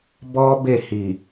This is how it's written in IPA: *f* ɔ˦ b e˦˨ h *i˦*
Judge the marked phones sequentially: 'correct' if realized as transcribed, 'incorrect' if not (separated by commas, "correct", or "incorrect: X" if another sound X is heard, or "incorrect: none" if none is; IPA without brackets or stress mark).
incorrect: b, incorrect: i˨